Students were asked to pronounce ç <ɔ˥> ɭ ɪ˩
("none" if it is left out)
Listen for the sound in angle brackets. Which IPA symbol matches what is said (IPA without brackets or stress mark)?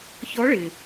ɔ˧˥